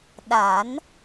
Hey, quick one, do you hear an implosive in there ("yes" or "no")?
yes